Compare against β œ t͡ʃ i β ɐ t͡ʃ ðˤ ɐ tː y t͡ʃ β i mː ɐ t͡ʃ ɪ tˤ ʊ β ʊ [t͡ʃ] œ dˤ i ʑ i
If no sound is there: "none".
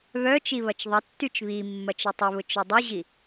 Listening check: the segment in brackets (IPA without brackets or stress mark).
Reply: t͡ʃ